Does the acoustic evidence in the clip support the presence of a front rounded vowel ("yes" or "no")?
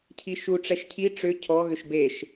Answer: yes